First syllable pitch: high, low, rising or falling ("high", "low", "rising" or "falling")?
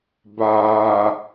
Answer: low